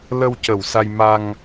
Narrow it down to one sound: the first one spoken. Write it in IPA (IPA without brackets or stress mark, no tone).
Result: l